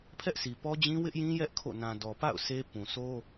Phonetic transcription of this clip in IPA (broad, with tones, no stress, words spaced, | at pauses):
pʰɛ˦ʔsʰi˨pɔ˦d͡ʑĩ˦ wɪ˦ʔjĩ˦jɛ˦ʔ kʰo̰˦˨ nã˨dɔ˨pa̰˦˨ʊ̯ sʰe˦ pũ˨sʰo˦